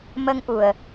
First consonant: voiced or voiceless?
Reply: voiced